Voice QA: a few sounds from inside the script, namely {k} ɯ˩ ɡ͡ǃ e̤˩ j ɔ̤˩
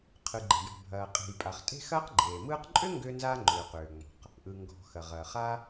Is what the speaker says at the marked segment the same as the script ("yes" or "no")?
no